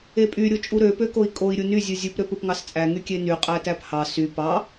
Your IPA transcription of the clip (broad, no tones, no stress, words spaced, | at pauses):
epʼy ɾʲot͡ʃʼuɾø pøkoi̯kʼoi̯ ɾʲuny zʲɯzʲup ɾøpɯpŋɑst͡sʼæ ŋykʲeny qʼætæphɑ sy pɑ